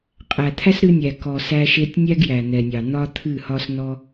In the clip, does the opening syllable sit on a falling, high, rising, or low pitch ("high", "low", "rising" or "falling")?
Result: low